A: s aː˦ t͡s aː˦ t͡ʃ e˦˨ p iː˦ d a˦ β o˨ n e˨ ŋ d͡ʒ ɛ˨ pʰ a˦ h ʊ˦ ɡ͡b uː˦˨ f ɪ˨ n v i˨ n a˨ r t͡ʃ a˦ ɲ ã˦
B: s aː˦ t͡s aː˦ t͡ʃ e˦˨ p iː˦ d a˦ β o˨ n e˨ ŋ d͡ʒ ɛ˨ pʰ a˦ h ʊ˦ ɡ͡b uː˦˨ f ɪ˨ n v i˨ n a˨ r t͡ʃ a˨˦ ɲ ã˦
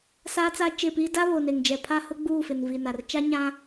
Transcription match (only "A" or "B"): A